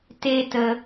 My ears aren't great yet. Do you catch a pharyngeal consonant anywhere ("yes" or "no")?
no